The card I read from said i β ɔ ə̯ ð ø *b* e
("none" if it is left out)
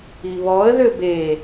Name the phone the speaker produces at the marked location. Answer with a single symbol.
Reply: b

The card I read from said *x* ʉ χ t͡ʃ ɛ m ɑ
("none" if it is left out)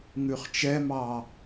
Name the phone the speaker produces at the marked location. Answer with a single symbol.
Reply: ŋ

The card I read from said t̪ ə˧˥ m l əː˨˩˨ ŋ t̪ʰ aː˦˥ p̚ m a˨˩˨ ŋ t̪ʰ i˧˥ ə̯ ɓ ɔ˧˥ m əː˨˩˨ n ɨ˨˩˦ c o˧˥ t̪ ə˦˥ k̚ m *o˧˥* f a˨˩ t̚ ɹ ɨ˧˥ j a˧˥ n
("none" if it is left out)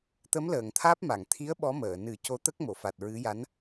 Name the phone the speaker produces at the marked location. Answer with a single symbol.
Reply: o˨˩˨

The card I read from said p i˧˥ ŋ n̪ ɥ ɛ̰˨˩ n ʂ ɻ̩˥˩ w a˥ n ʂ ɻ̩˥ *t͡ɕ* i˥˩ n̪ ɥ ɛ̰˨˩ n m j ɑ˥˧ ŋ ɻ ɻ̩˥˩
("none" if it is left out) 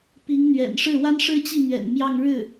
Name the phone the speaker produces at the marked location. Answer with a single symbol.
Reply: t͡ɕ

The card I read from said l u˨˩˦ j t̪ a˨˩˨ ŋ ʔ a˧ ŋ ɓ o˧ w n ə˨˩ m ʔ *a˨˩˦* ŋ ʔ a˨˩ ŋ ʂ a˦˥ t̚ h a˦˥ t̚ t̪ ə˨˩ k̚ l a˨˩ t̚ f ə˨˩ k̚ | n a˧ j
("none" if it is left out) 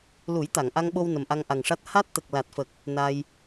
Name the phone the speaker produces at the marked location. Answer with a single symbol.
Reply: a˧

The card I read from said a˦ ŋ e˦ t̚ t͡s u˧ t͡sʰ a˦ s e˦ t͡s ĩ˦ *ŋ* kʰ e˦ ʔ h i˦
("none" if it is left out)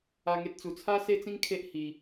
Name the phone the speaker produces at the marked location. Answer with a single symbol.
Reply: ŋ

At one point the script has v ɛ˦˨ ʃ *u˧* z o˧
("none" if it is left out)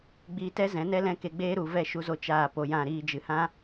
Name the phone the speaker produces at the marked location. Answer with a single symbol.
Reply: u˧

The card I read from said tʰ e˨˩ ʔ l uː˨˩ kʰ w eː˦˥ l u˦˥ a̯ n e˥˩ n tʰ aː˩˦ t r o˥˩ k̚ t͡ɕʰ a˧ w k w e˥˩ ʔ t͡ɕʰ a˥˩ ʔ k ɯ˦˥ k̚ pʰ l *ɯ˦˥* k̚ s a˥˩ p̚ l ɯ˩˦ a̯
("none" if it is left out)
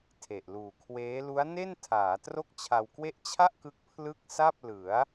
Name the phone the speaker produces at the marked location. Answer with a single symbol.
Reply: ɯ˥˩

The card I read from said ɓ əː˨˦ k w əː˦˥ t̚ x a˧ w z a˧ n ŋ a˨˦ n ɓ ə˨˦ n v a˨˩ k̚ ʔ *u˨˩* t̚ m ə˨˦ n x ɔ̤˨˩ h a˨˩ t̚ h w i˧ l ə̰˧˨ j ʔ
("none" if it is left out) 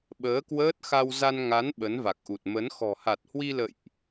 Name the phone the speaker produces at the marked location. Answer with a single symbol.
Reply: u˨˩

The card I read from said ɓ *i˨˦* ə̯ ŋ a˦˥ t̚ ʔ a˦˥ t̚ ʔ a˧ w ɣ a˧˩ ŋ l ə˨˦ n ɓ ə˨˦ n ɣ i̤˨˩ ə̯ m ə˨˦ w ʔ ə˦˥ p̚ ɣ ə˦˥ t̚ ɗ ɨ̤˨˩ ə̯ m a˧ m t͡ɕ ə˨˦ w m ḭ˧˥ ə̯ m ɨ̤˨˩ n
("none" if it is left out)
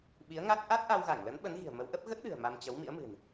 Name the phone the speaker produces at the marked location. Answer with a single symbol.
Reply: i˨˦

